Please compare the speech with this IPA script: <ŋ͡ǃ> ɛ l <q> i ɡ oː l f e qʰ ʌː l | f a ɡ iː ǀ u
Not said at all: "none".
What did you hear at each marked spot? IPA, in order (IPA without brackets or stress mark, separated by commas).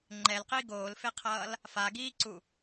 ŋ͡ǃ, q